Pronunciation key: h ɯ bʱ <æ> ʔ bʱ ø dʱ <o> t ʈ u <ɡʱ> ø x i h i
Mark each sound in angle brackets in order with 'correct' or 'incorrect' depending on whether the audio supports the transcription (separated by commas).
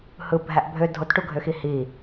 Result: correct, correct, correct